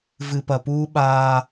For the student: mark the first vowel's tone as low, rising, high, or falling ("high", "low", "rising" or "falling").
low